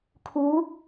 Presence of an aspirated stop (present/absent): present